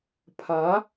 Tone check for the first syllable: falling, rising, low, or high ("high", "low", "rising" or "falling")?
rising